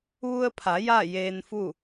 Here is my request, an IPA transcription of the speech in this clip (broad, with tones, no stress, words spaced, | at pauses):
ʋu˧ə̯pʰa˩˧ ja˥˨ jeː˧n fu˥˨